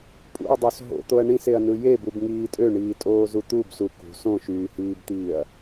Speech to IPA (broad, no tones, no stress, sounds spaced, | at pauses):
pʼ ṵ ɐ̯ dˤ o s ɦ o̰ t̪ o ɐ̯ ɳ ĩ s e ɐ̯ n ɯ j e b u b ŋ iː tʼ ø ɳ iː tʼ oː z u t̪ u b s u k ṳ s õ ʃ yː h iː b t̪ iː ɐ̯